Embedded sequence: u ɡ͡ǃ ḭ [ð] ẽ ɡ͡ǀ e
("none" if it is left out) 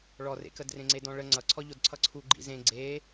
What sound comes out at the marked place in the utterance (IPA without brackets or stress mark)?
z